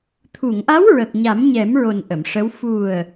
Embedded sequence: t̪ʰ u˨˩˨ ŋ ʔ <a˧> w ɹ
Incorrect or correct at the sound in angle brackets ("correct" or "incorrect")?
incorrect